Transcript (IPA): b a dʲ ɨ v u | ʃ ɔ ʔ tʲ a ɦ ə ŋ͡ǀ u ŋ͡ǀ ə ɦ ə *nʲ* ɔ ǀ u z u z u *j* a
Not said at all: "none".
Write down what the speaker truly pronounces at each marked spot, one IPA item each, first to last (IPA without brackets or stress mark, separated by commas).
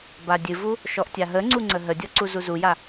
dʲ, j